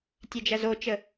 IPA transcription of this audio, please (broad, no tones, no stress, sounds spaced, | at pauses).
tʲ ɛ d͡ʒ ɐ z o t͡ʃ ə